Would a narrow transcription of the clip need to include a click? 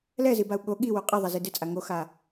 no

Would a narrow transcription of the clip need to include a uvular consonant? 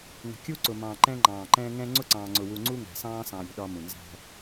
no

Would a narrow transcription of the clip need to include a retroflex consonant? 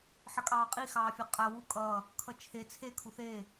no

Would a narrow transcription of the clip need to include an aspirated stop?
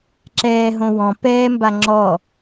no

